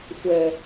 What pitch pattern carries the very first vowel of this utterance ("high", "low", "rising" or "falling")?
low